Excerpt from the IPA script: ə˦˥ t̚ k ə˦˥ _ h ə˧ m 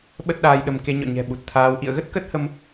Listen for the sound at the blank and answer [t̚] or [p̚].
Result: t̚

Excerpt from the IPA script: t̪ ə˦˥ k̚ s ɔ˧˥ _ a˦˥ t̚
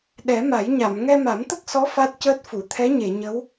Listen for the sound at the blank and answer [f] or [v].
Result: f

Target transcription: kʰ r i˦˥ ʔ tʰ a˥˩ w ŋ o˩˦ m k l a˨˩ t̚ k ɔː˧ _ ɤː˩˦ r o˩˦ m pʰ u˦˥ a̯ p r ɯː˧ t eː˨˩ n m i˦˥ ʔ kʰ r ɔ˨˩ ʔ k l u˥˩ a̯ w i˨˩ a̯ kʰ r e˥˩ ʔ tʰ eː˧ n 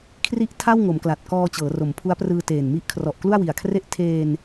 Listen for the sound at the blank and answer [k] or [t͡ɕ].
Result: t͡ɕ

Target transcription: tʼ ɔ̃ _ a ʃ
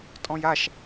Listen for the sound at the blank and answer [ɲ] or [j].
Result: j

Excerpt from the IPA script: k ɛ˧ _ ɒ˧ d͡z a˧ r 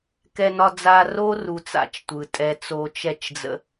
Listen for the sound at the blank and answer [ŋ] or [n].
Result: n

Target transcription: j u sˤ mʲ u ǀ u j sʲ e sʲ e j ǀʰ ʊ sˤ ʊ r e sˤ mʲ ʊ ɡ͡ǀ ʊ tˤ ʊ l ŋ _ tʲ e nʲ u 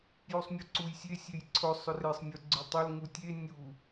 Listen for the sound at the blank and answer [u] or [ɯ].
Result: u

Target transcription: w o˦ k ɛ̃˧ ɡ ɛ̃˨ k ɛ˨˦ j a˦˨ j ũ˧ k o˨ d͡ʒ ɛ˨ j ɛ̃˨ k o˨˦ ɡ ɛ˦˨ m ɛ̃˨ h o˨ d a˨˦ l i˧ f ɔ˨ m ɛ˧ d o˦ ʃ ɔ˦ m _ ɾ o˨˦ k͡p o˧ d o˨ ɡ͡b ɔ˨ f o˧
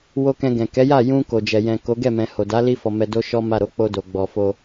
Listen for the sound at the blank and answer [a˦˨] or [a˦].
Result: a˦˨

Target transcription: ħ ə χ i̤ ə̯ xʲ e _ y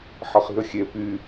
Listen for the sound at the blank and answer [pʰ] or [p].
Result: p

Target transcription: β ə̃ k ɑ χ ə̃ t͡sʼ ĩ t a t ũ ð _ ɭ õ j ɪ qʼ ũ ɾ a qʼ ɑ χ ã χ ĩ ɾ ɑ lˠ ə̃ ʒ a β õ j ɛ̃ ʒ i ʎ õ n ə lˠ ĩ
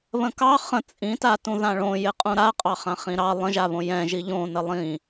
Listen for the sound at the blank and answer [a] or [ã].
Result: ã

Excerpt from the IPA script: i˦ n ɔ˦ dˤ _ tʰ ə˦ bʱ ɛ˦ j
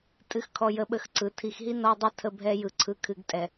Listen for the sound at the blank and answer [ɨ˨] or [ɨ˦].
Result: ɨ˦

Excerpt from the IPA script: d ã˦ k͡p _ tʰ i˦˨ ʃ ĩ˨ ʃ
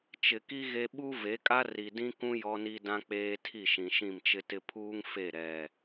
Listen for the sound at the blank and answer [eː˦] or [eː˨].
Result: eː˦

